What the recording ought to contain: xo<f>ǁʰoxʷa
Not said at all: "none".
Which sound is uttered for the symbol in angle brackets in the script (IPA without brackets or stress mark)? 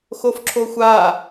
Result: f